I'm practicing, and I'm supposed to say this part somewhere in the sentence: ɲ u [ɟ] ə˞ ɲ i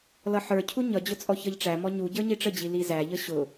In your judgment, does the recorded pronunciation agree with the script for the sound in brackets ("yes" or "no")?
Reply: yes